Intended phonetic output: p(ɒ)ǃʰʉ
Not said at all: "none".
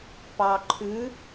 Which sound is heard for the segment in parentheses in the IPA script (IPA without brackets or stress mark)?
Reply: ɑ